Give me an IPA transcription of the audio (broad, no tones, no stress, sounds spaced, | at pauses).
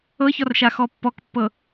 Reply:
ɤ ç ɔ r ʃ a x ɔ pː ɔ k pː ɤ